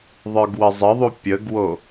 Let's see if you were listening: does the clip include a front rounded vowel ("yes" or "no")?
no